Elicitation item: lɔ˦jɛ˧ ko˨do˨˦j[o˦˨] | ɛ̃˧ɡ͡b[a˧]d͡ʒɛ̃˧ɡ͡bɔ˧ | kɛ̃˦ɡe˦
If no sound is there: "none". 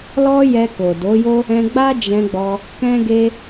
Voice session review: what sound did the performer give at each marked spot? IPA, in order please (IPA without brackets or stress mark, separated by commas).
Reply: o˦, a˦